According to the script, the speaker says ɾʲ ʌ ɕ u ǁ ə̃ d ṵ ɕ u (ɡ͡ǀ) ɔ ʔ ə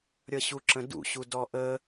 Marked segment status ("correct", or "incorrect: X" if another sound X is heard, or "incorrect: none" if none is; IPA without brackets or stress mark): incorrect: d